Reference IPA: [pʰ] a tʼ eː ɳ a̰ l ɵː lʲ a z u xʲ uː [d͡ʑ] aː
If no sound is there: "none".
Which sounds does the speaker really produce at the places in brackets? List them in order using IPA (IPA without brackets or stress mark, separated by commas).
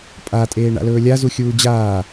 pʼ, d͡ʑ